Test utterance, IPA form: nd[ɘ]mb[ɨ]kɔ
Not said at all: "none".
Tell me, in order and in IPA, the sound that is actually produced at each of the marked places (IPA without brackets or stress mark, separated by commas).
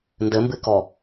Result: ɘ, ɨ